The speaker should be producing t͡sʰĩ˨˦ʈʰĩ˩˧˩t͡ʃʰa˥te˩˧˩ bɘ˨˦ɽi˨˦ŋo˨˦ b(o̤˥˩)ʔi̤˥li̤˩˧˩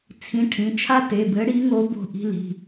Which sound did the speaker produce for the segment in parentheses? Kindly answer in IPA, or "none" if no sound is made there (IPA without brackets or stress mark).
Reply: o̤˥˩